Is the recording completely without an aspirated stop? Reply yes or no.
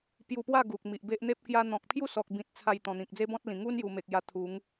no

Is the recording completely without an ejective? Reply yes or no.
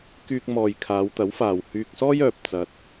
yes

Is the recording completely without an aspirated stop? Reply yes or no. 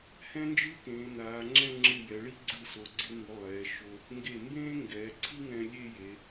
no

